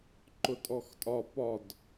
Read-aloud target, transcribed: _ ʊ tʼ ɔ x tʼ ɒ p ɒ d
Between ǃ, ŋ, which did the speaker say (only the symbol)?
ǃ